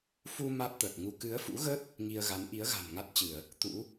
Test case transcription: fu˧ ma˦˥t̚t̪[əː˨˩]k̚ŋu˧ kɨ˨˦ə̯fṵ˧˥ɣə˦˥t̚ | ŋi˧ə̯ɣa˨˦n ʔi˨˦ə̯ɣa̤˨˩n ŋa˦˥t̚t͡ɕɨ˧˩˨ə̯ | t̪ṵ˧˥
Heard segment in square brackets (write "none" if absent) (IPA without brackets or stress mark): əː˨˩